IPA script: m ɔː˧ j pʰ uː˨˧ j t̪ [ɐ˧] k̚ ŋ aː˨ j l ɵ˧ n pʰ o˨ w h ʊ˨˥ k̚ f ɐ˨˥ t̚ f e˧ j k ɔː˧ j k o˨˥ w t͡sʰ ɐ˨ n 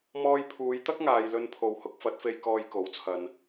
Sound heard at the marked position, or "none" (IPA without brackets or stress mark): ɐ˥